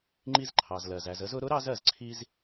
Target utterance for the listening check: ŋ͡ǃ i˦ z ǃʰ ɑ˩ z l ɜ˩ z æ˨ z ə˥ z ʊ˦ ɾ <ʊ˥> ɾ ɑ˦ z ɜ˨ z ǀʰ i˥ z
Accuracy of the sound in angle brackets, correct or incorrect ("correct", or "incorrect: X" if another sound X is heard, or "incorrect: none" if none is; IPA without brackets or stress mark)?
correct